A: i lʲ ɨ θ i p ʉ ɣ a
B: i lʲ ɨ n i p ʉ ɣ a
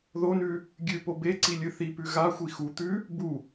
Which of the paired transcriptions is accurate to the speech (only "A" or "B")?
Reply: A